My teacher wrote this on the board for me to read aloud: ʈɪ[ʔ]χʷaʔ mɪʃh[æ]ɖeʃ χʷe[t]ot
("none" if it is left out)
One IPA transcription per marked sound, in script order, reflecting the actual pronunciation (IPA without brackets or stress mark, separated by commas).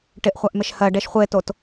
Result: ʔ, ɜ, t